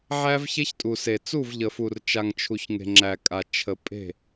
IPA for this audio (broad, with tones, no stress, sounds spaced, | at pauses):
ʕ æ˦ v ç e˦ ç tʼ u˨ s e˨ t͡s u˦˨ v ʎ ə˨ f u˨ r t͡ʃ a˨ ŋ t͡ʃʰ u˨ ç ŋ e̤˨ ŋ͡ǁ æ˨ kʼ a˨ t͡ʃʰ ə˨ pʼ e̤˦˨